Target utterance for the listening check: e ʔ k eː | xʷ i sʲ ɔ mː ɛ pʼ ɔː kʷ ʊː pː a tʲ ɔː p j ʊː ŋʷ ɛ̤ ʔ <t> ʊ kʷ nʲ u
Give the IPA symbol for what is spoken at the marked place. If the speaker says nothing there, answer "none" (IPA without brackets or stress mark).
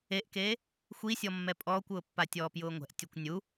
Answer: tʲ